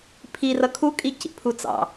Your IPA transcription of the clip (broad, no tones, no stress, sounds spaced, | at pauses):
pʰ i r ʌ kʰ u kʼ i c ḭ pʰ u t͡s ɑ̰